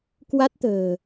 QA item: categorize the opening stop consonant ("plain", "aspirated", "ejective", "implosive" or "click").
plain